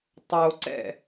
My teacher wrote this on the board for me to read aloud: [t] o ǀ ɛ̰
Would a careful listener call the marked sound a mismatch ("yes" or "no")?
yes